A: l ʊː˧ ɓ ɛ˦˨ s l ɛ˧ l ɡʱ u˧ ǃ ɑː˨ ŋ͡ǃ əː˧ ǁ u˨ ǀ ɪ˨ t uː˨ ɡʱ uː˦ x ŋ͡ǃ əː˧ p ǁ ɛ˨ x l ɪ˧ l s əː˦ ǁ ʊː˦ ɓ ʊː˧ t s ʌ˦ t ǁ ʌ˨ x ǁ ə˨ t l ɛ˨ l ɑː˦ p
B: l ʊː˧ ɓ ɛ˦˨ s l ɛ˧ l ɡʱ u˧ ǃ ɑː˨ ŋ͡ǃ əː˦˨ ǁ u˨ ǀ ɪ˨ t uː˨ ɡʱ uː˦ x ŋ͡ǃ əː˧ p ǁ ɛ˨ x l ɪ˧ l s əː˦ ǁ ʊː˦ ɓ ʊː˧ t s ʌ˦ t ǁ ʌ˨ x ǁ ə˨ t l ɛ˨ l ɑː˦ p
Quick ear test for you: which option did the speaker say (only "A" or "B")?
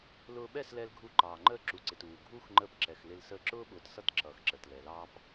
B